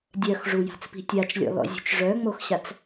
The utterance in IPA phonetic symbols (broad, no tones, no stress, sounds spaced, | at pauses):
dʲ œ x ʐ u j a̤ t͡s p i̤ tʲ a t͡ʃ lʲ ɔ̰ l ɔ̰ zʲ ṳ t͡ʃ ʐ œ ŋ͡m o x ɕ a t͡s